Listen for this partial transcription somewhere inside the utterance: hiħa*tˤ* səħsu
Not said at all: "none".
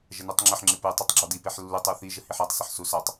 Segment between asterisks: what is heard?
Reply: tˤ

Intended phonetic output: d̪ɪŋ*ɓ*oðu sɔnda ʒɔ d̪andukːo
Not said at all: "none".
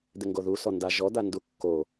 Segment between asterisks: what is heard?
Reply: ɡ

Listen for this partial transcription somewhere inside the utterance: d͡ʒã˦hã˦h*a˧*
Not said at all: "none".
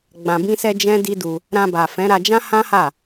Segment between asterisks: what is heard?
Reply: a˦˨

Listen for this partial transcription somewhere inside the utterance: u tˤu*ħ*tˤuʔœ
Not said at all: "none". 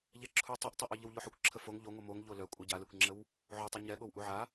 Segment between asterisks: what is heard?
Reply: ʔ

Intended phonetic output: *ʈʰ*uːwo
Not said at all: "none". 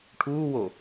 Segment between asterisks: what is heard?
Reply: ʈʰ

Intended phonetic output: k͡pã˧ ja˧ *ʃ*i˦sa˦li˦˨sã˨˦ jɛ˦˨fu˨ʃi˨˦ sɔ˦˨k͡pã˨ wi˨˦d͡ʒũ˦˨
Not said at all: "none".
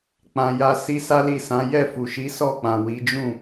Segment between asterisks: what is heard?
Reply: s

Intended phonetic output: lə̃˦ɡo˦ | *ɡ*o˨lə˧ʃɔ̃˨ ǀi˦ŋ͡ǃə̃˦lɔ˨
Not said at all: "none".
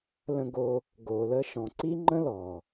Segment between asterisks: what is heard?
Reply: ɡ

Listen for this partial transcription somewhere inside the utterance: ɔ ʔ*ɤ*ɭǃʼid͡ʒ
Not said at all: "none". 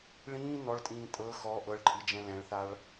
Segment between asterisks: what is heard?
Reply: ɤ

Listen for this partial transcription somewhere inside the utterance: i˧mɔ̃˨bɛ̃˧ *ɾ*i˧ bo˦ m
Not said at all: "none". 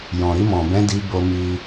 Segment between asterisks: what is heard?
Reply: d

